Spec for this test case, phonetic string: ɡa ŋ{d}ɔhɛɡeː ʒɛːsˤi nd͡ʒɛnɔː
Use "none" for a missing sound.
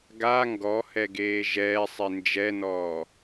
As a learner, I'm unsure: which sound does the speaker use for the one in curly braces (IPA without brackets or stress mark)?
ɡ